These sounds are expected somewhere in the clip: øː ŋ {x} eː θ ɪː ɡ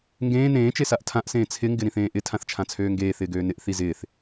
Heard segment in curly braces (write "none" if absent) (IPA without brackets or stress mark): ɡ